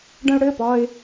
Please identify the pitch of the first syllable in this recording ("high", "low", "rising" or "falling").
high